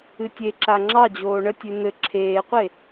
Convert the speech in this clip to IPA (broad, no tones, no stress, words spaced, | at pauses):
ɨtʲeǁa ŋ͡ǁɑd͡ʑoː ɳətʲʉ n̪ɘ ǁʰeːqʷe